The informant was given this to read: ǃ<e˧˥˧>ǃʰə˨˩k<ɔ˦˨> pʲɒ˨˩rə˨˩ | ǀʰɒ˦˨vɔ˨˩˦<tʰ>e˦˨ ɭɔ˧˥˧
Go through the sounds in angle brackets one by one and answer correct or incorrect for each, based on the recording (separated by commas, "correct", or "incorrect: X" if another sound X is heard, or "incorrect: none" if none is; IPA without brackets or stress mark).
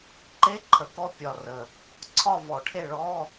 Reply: correct, correct, incorrect: ʈʰ